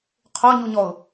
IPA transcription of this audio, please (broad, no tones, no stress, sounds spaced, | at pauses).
qʰ o ɲ u ɲ ɔ ʊ̯